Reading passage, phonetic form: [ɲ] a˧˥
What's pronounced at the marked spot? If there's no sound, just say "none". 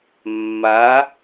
mː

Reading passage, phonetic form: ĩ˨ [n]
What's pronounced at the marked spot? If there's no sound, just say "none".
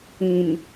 n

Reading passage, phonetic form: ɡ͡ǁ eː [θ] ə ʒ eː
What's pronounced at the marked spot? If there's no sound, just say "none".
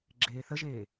θ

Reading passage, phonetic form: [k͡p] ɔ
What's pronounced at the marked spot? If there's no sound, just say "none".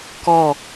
k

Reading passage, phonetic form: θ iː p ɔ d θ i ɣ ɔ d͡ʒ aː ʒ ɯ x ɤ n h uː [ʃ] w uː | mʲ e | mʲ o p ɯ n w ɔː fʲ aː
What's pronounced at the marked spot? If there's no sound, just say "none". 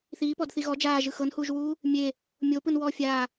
ʒ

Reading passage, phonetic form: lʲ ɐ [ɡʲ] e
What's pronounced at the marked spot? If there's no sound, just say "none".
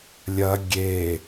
ɡʲ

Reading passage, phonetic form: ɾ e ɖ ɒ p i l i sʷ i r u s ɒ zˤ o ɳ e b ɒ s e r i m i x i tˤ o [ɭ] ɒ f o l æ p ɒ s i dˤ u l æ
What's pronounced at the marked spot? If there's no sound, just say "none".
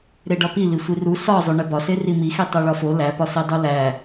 ɭ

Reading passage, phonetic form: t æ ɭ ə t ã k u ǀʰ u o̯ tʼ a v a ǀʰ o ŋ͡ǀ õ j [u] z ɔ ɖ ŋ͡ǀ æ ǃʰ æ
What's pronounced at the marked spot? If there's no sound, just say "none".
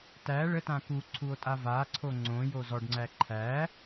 o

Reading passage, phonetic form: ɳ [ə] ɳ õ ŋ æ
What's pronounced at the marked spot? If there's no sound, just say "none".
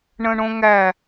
ə̃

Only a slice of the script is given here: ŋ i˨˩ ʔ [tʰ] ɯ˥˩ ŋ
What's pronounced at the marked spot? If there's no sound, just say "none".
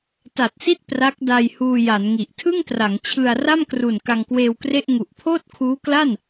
tʰ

